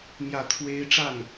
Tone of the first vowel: falling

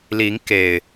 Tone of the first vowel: rising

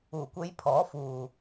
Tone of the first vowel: low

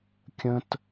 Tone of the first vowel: high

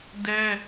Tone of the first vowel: high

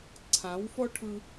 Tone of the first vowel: rising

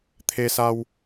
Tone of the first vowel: high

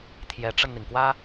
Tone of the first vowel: rising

